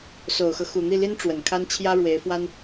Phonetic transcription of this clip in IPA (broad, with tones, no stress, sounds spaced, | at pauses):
s o˨˩ ʊ̯ x ɤ˦ x u˨˩ n̪ i˥˩ l i˥ n ʈ͡ʂ w ə˨˩ n kʰ a˥ n t͡ɕʰ j ä˥ ɻ w e˧˥ ɪ̯ f w a˥ n